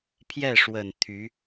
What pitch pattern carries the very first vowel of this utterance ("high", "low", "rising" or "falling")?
falling